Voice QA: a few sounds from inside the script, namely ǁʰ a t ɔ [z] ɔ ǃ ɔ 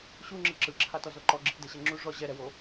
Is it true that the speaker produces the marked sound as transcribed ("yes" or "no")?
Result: yes